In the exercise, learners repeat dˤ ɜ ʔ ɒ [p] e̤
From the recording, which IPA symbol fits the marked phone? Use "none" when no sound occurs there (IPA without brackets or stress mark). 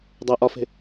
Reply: f